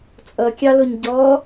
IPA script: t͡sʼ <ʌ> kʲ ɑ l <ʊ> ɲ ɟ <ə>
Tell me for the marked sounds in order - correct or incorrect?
correct, correct, incorrect

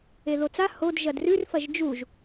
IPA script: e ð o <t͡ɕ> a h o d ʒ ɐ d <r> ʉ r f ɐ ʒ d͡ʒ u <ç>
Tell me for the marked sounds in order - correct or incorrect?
incorrect, correct, incorrect

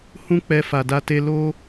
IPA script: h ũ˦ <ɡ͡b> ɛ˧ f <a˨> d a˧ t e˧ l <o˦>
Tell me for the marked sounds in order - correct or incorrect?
incorrect, correct, correct

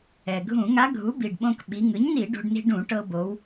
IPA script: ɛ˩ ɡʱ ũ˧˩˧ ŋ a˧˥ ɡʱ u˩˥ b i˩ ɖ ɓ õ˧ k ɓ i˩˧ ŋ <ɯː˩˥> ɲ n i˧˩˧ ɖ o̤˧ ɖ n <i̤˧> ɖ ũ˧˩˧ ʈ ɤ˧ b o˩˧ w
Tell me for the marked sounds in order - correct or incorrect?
incorrect, correct

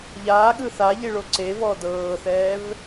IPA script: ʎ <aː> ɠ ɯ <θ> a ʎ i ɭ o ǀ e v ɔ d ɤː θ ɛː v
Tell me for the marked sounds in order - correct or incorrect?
correct, correct

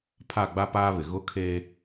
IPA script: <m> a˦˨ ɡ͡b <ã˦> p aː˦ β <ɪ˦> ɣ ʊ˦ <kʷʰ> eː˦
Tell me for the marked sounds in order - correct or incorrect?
incorrect, incorrect, incorrect, incorrect

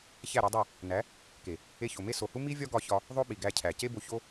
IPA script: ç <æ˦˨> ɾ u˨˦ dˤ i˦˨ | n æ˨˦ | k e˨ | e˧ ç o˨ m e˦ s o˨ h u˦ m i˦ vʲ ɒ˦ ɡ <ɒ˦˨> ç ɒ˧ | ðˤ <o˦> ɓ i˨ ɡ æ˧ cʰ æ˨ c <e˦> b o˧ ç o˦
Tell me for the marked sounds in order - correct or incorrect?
correct, incorrect, correct, correct

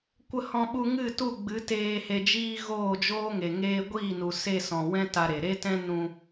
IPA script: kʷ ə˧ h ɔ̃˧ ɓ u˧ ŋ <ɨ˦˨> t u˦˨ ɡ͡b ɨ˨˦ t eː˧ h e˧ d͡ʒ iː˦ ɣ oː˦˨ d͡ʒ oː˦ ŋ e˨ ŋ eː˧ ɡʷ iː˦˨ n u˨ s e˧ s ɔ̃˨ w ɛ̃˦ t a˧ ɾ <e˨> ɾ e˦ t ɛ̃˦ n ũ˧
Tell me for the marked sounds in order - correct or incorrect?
correct, correct

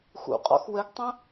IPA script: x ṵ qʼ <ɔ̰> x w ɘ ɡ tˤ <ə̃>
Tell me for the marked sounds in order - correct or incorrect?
correct, correct

